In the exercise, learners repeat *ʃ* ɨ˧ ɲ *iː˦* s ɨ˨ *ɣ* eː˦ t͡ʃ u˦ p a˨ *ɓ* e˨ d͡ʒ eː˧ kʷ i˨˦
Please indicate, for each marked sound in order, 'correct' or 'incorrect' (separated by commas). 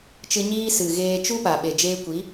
incorrect, correct, correct, correct